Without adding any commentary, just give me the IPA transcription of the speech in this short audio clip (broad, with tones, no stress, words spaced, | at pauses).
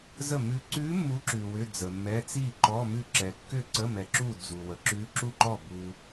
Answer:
zə˥˩mʉ˧˥ ǀʉ˧˥ mːu˧˥ǁʉ˨ wʏ˧˥˧d͡zə˨mːɛ˧˥˧ t͡si˥˩ǃɔ˧˥˧mʉ˥˩ǁɛ˨ kːʏ˥˩ǀə˧˥˧ mɛ˨ǁu˥˩ d͡zu˨wə˨ ǁʉ˧˥ǁu˥˩ǃɔ˥˩ bu˨